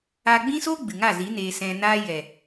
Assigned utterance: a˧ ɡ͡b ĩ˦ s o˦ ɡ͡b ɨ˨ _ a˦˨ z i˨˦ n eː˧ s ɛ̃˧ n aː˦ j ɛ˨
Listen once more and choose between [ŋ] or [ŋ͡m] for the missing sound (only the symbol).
ŋ